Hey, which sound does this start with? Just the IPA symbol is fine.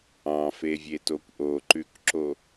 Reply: ɑ̃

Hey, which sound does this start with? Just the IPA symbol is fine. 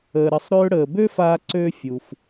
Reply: əː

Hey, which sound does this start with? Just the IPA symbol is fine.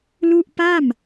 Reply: l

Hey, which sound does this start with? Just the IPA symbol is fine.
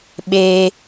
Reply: ɓ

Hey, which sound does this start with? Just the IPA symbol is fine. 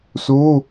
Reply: s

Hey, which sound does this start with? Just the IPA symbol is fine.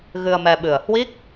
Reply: ɣ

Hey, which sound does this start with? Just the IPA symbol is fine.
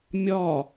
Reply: mʲ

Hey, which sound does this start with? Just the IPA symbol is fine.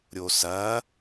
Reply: ɾʲ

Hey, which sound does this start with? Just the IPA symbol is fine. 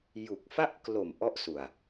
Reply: j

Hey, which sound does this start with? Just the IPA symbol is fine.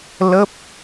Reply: l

